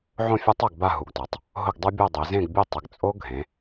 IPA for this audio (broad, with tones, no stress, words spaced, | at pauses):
ʕõ˥˨fʲa˦˥tˤ a˥˨ɡba˥˨ɦu˩˧ɡtɔ˩˧tˤ | ɦʊ˥˨ɡdˤu˦˥bʲɔ˥˨ dˤe˩˧zẽ˥˨ɡbʲu˥˨ tˤɪ˩˧ɡt͡sʼo˦˥ɡʱẽ˩˧